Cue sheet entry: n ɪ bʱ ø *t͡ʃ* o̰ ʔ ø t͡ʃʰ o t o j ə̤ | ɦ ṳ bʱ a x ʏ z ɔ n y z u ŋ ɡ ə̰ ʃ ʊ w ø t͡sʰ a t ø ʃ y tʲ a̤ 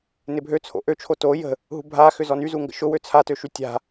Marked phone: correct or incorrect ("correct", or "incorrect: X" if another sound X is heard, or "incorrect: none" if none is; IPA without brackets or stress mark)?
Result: incorrect: t͡sʰ